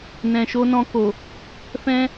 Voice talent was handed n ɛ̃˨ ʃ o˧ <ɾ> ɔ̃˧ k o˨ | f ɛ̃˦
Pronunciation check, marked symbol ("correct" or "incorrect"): incorrect